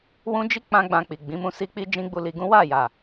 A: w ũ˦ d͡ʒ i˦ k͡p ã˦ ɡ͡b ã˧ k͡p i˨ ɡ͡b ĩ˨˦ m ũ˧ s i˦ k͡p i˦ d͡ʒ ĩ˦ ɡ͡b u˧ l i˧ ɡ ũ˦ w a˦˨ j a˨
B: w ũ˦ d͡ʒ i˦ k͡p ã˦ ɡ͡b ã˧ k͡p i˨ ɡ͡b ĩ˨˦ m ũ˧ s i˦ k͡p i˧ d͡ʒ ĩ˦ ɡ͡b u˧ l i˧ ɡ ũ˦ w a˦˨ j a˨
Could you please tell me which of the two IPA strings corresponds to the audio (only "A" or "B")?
A